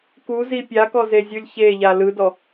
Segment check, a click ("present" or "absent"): absent